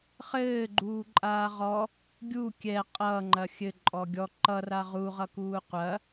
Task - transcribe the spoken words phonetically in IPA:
χ ɘː ɡ͡ǃ uː ǃʼ aː ʁ ɔ | ɡʲ u kʲ ɛ qʼ ʌː ŋ͡ǃ ɐ xʲ ɘ ǃʼ ɔ ɡʲ ɔ ǃ ʌ r a ʁ u ʁ ʌ k uː qʷ ɐ

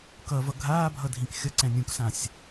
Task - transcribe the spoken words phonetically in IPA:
k ʌ v ʌ ɡʱ aː bʱ ʌ dʱ ĩ k xʲ ʌ ǀ ɛ̃ nʲ ũ k s ã sʲ

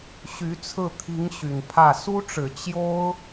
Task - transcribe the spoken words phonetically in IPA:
ɕ y˧˥ t͡sʰ ɹ̩˥˩ t̪ʰ i˧˥ ŋ ɕ y˨˩ n pʰ ä˥˩ s u˥ ʈ͡ʂ ɻ̩˨˩ t͡ɕ j o˥ ʊ̯

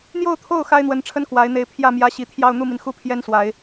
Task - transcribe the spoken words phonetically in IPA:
n̪ j o˥˧ ʊ̯ t̪ʰ o˥˩ ʊ̯ x a˥ ɪ̯ n̪ w ə˧˥ n ʈ͡ʂʰ ə˥ n k w a˧˥ ɪ̯ n̪ e˧˥ ɪ̯ pʰ j ä˥˩ m j ä˧˥ ɕ i˨˩ t̪ʰ j ɑ˥˧ ʊ̯ n̪ u˥˩ m i˩ n x u˥˩ pʰ j ɛ˥ n s w a˨˩˦ ɪ̯

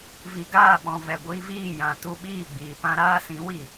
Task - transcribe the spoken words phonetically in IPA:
v i˨ ɡ aː˦˨ ɓ ɔ̃˨ v ɛ˨ ɡʷ iː˧ v iː˦˨ j ã˨ t u˧ ɓ iː˦˨ ɡ͡b iː˨ p ã˦ ɾ aː˦ s ĩ˨˦ w i˦˨

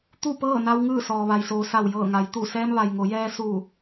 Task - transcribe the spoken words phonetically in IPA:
t̪ u˥˨ p ɤː˥˨ n a˧ w ŋ ɯː˥˨ s ɔː˩ ʋ a˩ j s oː˩ s a˧˩ w j ɤː˧˩ ŋ a˩˧ j t̪ u˧˩ s ɛː˧ m ʋ a˩ j ŋ o˩˧ j ɛː˧ s u˧˩

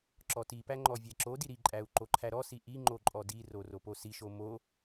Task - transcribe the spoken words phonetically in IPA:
ǁ ɔ t i p æ ŋ͡ǃ ɔ vʲ æ ǁ o d i ɾ i ǃʼ æ u̯ ǃ o ǃʰ æ ɾ ɔ s i ʔ i ŋ͡ǃ o ǃʼ ɔ d i r o r o p o s i ʃ o m o

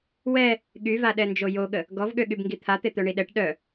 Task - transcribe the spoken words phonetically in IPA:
w ɛ | ɠ y v a ɗ ɛ n d͡ʒ o j o ɠ ə | ɡ ɔ v ɠ ø ɠ y b ŋ ɡ i t̪ʰ a t̪ e t̪ œ ɳ i ɗ ɛ ʈ ɗ œ

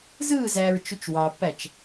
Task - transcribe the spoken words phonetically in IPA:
z ɯː z æː ɹ t͡ʃ u t͡ʃ w ɑ pː æ t͡ʃ

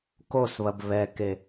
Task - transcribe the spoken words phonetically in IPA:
k o s β ɐ b β ɛ k e

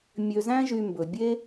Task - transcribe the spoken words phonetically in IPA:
mʲ ø˨ z æ̃˦ ʒ y˨ m b ɵ˩ bʲ e˥

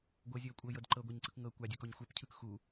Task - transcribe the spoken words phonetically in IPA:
ɡʷ ɤ zʲ ɤː kʷʼ ɤ j ɤ d ǃ ɤ ɡʷ a ɲ ǀ ɯ k ŋ ɤ kʷ a dʲ u k ɔ ɲ xʷ ɛ p cʰ ɯ k x u

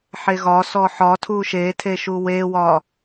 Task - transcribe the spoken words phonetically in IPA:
ħ e ɣ ɒ s ɔ ħ ɒ tʰ u ʃ e tʰ e ʃ u w e w ɒ

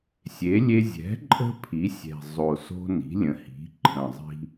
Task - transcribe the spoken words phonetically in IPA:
sʲ e˩˥ lʲ e˦ zʲ ɛ̤˩˥ ǃʼ ə̤˦ pʰ i˩˥ sʲ ɛ̤˨˩ zˤ o˨˩ s o̤˦ n i̤˩˥ lʲ ə̃˩˥ h i̤˩˥ ǃʰ ə̃˨˩ zˤ i̤˦

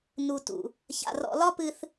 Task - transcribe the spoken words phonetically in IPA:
n u˨ t ṵ˨ | ç a̰˨ r ɔ̰˨ l ɒ˦ p ɨ˦ θ

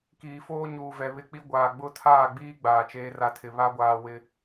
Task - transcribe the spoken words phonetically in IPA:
k iː˨ f oː˦ ɲ uː˨ v ɛ˨ β ɪ˦ k͡p i˦ ɡʷ aː˨ ɡ͡b ʊ˦˨ tʰ aː˦˨ ɡ͡b iː˦ ɡ͡b aː˨ t͡ʃ eː˦ r a˦ tʰ ɪ˨ β a˦ ɡʷ aː˨ w ɪ˨

